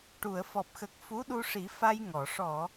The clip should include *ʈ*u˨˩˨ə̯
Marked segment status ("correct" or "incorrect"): correct